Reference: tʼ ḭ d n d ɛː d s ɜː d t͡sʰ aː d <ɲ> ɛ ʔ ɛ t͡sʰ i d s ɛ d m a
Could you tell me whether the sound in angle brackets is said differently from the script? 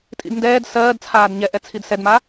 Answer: no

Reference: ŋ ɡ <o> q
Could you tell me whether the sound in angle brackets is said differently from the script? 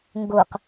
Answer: no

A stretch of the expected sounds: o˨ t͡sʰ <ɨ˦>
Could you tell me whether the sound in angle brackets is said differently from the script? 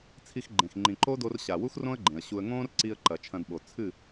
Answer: yes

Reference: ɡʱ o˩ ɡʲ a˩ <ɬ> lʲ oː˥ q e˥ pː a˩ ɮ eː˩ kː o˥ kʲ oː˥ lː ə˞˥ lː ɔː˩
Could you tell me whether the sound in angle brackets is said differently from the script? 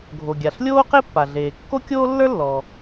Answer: no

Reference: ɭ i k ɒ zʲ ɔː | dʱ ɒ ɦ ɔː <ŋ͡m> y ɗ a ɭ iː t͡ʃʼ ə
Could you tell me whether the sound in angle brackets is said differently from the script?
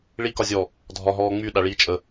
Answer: no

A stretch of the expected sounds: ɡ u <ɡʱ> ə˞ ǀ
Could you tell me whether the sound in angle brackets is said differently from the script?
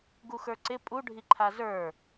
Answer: yes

